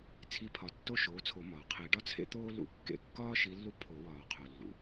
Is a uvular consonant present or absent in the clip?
present